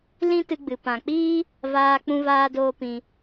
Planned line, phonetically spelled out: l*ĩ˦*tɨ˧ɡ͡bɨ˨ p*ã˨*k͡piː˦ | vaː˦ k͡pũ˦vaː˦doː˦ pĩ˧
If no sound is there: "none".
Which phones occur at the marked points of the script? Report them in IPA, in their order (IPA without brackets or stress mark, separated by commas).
ĩ˦, ã˨